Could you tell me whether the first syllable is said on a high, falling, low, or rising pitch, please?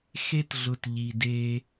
high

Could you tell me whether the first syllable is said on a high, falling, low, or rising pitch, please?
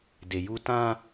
low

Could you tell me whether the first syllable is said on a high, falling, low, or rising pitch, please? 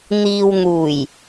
low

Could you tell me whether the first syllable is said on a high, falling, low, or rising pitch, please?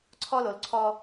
high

